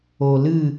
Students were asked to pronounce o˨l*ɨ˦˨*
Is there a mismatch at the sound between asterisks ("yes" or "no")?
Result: no